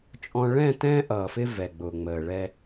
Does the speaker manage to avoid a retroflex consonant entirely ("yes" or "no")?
no